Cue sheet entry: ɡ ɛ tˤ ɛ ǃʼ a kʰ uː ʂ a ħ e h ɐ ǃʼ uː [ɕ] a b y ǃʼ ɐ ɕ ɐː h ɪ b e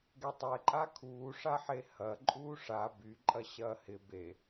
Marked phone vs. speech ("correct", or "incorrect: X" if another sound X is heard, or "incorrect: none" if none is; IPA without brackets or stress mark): incorrect: ʂ